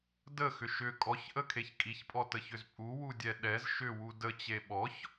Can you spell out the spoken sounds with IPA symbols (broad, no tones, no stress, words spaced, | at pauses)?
dəxʏ ʃʏ kʼɔçʔəkʰeç kʼiçpʼɔtəçʏz pʼuwudʲɛ ɗɛz ʃʏwu dət͡ɕe ɓɔç